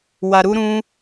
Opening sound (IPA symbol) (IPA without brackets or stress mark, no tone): w